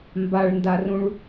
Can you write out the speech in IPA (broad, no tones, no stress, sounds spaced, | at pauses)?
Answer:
m b a ɭ n d a r ũ ɭ